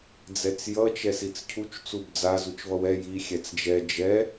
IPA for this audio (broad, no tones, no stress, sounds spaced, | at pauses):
d͡z ɛ t͡s j ʌ t͡ʃ ɛ s i t͡s cʰ u t͡ʃ t͡s u b d͡z a z u t͡ʃ v ʌ w ɛ j i xʲ ɛ t͡s d͡ʒ ɛ d͡ʒ ɛ